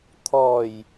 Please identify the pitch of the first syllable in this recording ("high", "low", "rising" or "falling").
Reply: low